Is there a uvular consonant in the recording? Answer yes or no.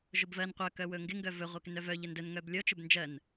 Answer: yes